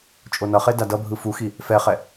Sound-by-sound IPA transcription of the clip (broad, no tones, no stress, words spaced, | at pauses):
t͡ʃʼonʌχe dadʌbʱɯ fuxi | fɛχɛ